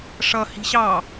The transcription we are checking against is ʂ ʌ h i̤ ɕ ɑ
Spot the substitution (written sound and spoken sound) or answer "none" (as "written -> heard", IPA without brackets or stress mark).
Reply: none